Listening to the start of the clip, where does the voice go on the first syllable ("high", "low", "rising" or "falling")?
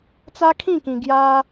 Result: high